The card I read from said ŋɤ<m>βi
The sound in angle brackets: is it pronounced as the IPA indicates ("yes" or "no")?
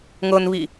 no